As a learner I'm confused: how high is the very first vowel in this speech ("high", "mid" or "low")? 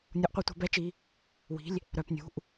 high